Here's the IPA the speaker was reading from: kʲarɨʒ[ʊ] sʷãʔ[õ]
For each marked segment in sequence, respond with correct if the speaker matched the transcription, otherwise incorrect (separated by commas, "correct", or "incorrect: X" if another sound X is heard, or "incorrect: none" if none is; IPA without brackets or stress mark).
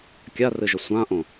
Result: correct, correct